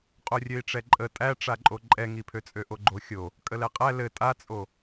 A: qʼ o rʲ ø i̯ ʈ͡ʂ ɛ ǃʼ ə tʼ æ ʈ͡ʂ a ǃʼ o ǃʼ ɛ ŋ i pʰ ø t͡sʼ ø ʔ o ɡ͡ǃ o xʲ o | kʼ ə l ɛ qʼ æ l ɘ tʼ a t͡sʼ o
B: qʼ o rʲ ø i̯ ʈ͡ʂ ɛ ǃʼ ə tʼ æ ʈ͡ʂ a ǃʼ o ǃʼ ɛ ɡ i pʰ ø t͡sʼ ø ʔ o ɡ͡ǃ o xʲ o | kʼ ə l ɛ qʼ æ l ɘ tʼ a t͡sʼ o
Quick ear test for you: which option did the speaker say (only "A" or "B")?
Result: A